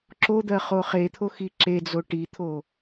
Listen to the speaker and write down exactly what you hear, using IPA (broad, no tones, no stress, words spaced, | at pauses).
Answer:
ǁod̪ɜ χoχet̪ʰo xiǁed͡zo ʈit̪ʰo